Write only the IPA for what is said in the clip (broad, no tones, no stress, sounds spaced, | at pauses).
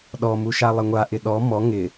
ɗ ɔ m u ʃ a lˠ ɪ ŋʷ a ʔ ɪ ɗ ɔ m ɔ ŋ ɪ